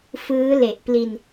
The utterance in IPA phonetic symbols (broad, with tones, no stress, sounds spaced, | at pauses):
f ɯː˦˥ l e˨˩ ʔ p l i˧ n